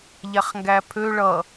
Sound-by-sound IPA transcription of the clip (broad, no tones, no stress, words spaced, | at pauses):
ʎæχŋɡæpʰø ɭʌ